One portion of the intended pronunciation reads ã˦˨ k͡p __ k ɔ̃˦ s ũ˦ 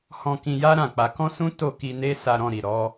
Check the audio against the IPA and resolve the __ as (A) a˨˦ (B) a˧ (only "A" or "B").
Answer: B